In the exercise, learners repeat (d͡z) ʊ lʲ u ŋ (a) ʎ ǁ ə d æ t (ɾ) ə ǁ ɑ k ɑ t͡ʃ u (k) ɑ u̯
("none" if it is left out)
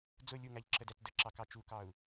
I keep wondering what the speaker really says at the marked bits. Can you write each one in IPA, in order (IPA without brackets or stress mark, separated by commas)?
d͡z, æ, d, k